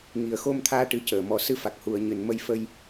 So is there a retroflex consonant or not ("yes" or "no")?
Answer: yes